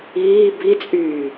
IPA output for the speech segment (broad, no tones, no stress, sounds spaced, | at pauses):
iː b i t͡sʼ yː